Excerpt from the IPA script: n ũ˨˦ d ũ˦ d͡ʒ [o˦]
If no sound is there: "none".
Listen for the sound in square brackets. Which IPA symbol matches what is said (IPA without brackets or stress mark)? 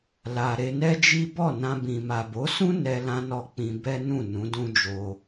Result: o˧